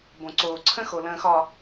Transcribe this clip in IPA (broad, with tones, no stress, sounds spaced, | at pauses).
b õ˨ ǀ oː˨ ǀʰ ə̃˦ x o˨ l ə̃ː˨ x ɒ˨